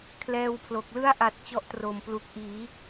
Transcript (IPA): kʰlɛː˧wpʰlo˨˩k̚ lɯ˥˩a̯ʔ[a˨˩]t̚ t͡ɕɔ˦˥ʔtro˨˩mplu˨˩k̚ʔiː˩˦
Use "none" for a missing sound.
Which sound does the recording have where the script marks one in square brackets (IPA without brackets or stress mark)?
a˨˩